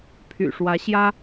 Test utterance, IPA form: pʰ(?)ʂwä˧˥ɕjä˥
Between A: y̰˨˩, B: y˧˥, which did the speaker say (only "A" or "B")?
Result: A